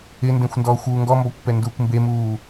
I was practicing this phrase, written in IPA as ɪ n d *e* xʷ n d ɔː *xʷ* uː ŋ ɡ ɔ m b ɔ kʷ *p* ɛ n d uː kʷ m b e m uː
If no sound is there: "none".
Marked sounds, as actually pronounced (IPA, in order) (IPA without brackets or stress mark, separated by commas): ẽ, xʷ, p